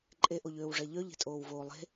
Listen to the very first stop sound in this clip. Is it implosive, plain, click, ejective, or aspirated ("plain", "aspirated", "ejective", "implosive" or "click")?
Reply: click